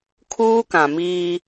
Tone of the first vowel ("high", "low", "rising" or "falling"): high